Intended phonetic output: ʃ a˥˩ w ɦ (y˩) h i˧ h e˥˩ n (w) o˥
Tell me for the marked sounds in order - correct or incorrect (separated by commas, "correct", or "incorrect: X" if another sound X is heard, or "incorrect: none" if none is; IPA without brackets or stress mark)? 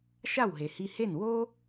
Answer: incorrect: e˩, correct